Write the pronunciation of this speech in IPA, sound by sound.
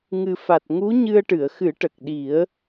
ŋ ɨ˨˩ f a˨˩ t̚ ŋ u˧˥ ɲ ɨ˧ ə̯ ʈ ɨ˨˩˨ ə̯ x ɨ˨˩˦ ʈ ə˨˩ k̚ ɗ i˨˩˦ ə̯

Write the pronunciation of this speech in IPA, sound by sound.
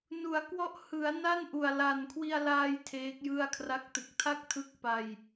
n u˩˦ a̯ k w ɔ˦˥ ʔ h ɯ˩˦ a̯ n a˥˩ n ʔ u˨˩ a̯ l a˨˩ n kʰ w i˧ a̯ l aː˧ j tʰ eː˦˥ k̚ j ɯ˥˩ a̯ kʰ r a˦˥ k̚ t ɯ˨˩ k̚ tʰ a˥˩ k̚ tʰ ɯ˦˥ k̚ p a˧ j

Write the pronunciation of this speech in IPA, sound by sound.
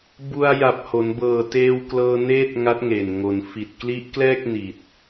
b u˧ a̯ j a˨˩ p̚ h o˩˦ n b ɤː˨˩ t eː˧ w k l ɤː˧ n eː˥˩ t̚ ŋ a˦˥ t̚ ŋ e˨˩ n ŋ o˩˦ n f i˨˩ t̚ k l i˦˥ ʔ k l ɛː˥˩ k̚ n i˨˩ t̚

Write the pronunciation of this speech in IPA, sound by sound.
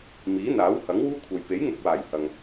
m iː˨˥ n̪ aː˨˥ w h ɐ˨˥ ŋ w uː˥ kʷʰ ɐ˨ j p e˨˥ j ŋ ʊ˨ k̚ w aː˨˩ j h ɐ˨ ŋ

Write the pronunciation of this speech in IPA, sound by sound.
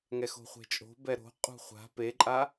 ŋ ɛ x o̤ χʷ e̤ t͡ʃʼ o̤ b ɛ ɾ o̤ qʼ ṳ χʷ a̤ p e ǃʼ a

